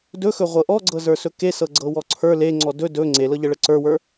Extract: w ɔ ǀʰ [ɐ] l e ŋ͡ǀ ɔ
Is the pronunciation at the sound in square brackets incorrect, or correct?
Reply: incorrect